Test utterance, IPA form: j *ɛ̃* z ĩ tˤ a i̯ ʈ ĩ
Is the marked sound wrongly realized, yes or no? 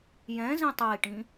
no